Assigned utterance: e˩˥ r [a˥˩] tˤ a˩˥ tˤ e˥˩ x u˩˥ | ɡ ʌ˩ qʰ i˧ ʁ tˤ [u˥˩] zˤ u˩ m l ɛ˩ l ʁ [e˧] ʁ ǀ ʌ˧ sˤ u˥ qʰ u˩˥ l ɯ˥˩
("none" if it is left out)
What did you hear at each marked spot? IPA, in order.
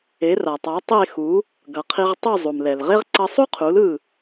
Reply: a˩, u˥˩, e˥

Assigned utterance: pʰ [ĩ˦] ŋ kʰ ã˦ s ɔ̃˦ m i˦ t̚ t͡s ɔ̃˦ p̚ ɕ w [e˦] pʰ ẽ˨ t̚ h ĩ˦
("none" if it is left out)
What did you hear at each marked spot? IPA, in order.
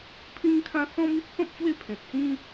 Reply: ĩ˦, e˦

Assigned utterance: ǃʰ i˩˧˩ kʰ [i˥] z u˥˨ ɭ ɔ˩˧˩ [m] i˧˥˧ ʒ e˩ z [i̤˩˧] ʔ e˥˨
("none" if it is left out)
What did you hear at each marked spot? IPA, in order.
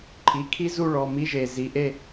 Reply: i˥, m, i˩˧

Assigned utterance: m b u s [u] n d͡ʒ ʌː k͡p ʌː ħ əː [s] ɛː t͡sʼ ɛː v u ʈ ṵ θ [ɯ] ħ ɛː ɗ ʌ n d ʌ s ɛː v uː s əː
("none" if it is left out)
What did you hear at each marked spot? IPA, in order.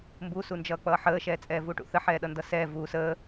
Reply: u, ʃ, ə

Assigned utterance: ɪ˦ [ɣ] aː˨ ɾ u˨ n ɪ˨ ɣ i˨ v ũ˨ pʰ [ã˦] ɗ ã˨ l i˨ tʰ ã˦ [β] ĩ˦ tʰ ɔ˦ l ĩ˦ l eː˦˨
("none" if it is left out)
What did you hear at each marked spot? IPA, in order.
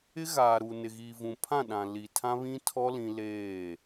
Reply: ɣ, ã˦˨, β

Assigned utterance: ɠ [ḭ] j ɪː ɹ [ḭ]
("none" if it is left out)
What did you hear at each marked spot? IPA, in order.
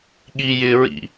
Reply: i, ḭ

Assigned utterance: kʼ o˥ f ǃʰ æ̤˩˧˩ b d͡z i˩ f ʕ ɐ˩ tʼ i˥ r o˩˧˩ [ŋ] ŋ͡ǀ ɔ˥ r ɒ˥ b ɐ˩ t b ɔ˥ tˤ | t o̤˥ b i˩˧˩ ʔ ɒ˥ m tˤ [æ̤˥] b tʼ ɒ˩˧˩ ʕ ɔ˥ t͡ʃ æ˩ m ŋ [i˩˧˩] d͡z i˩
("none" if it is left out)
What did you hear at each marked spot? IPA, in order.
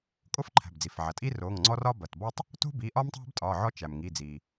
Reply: ŋ, æ̤˥, i˩˧˩

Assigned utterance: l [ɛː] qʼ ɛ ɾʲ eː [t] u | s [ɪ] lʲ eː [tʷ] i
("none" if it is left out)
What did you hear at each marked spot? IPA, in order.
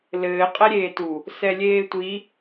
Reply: ɘː, t, ɛ, tʷ

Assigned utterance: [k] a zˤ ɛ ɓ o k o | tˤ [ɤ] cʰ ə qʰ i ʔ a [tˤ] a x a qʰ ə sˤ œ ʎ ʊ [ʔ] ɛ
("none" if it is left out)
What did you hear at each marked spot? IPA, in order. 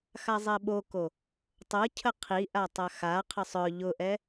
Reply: x, ɤ, tˤ, ʔ

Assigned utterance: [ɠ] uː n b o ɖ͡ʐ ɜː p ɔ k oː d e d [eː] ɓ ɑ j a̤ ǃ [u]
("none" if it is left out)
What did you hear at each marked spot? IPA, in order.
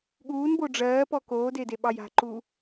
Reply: ɠ, e, u

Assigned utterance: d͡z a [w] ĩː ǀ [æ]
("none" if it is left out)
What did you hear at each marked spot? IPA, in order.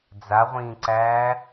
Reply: ʁʷ, æː

